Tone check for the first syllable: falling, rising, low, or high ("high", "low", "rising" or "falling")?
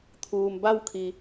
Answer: low